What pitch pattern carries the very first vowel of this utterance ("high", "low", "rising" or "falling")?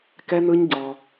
high